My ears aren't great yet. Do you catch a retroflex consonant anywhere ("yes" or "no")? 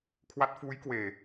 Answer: no